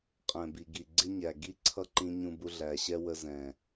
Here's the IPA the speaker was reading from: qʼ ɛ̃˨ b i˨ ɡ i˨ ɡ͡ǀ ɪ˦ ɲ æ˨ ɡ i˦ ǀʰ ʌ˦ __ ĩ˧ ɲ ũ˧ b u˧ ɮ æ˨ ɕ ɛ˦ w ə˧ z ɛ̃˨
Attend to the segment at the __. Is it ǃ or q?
ǃ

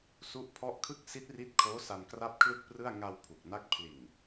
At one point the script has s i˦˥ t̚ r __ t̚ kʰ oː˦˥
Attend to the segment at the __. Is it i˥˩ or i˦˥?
i˦˥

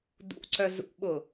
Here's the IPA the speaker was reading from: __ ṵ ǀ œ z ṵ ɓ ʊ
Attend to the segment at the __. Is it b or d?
d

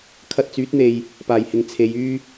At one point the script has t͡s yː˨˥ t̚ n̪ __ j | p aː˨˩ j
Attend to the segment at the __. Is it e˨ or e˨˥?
e˨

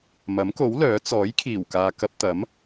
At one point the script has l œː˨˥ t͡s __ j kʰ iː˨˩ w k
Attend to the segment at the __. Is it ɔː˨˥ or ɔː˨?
ɔː˨˥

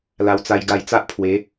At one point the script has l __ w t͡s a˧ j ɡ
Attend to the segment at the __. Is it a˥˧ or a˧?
a˧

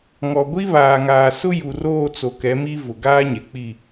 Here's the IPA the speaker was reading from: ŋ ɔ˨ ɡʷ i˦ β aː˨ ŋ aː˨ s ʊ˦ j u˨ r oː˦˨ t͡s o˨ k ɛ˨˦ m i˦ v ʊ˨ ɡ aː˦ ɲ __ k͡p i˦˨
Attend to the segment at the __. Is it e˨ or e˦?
e˨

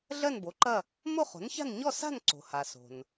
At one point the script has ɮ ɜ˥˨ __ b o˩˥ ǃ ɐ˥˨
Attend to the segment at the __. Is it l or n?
n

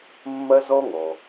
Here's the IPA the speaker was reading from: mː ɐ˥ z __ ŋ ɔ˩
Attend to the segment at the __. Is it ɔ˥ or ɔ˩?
ɔ˥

